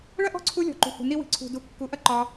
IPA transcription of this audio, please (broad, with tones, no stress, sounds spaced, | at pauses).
ɭ ɐ˦ ʔ ɔ̤˦˨ ǀʰ u˧ lʲ ɔ̤˨ ǃ ṳ˨ h ṳ˨ n i˧ w i̤˨ ǀʰ ṳ˨ d u˨ kː u˨˦ ʔ ɐ˦ ǃ ɒ˧